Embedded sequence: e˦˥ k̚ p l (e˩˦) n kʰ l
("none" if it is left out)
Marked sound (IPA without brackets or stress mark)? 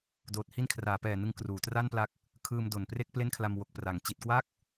e˥˩